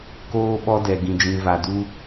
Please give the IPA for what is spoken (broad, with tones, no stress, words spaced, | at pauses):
koː˦ɓɔ˦dɛ˧ ɡĩ˧d͡ʒĩ˧ va˧ du˦